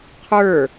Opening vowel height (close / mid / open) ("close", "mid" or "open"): mid